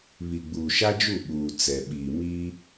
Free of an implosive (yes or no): no